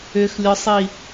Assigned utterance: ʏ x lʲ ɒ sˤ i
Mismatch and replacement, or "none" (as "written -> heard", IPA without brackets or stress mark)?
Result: none